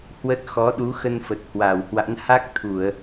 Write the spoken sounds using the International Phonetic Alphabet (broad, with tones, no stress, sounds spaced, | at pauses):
h w ə˦˥ t̚ x ɔ˨˦ ɗ u˨˦ x ə˧ n f ə˨˩ t̚ h w a˧˩ w h w a̰˧˥ n h a˦˥ k̚ t̪ʰ u˧˩˨ ə̯